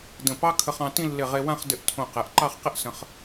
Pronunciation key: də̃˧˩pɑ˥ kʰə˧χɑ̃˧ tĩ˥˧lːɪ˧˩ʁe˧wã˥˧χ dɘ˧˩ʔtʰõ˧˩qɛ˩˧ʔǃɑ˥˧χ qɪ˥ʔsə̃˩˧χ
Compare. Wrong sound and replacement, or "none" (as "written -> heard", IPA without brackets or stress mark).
none